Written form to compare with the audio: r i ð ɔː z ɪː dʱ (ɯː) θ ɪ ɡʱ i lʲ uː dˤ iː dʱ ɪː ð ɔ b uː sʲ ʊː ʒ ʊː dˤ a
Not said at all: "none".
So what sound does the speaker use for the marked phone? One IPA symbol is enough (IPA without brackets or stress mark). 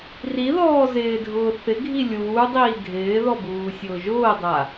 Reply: ʊː